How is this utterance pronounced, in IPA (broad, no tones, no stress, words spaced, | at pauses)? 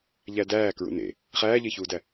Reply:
ʎædæː kɹṵnḛ | χæːʎeçuːdæ